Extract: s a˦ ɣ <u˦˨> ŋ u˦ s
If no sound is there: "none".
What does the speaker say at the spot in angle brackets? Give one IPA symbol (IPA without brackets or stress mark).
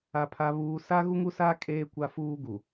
u˦